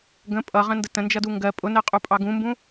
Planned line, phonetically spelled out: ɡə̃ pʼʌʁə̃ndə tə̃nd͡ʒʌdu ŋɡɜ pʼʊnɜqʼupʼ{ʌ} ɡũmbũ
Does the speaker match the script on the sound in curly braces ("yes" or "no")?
no